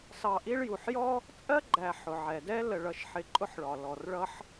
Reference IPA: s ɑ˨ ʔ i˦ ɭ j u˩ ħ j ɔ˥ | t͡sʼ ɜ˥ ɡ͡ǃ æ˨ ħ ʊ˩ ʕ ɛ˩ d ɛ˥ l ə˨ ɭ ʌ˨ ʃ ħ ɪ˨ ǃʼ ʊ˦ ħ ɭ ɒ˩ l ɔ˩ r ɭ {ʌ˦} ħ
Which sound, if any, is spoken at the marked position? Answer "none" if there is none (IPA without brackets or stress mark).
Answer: ʌ˦